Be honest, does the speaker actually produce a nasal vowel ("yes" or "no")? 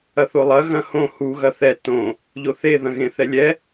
yes